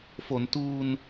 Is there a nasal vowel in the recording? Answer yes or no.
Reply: no